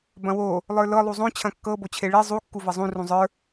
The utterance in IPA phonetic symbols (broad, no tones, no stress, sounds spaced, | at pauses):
b ɐ̃ w o | lˠ ə˞ l ɤ lˠ u zˤ õ t͡ɕʰ ɐ̃ kː ɤ b o t͡ɕʰ e ɭ e zˤ u kː u v ɐ zˤ ũ r ũ zˤ ə˞